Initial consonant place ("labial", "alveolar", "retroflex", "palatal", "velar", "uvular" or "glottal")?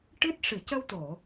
retroflex